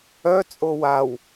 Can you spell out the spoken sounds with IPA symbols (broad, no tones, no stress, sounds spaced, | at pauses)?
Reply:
œ t͡sʼ o w a w